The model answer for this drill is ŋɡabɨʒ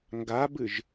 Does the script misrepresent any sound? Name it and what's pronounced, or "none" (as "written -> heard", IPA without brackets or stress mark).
none